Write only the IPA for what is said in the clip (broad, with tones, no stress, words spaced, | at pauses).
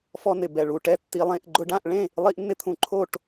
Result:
fɔ˧nɪ˨˩bɛ˨˩ ɭu˨˩ʈɛ˥˨tːi˧lˠẽ˥˨ʔ ɡ͡ǃʊ˧ɖã˥˨ʔɭẽ˥˨ | lˠi˧ʔnːɪ˧ t̪ʰũ˧ǃʰo˥˨ʈ